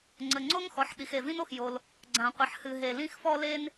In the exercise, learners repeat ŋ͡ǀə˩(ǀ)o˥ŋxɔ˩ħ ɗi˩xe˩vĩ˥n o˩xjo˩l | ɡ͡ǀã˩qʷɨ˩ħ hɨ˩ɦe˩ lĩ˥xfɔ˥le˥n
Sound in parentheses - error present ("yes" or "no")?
yes